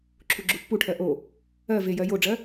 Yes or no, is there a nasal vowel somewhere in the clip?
no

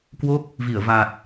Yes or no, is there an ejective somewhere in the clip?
no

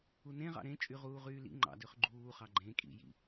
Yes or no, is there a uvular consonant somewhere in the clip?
yes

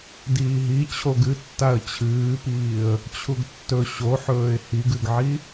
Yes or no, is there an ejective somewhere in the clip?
no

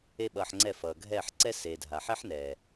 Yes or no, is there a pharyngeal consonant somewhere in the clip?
yes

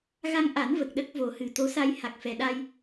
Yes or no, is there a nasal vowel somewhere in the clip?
no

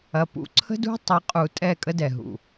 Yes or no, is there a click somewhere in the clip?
yes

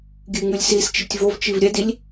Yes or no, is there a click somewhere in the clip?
no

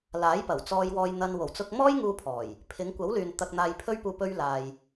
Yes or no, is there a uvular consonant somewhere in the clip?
no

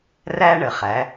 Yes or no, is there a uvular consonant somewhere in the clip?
yes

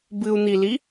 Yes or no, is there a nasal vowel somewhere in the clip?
no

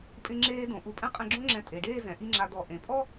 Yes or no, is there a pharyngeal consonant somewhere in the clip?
no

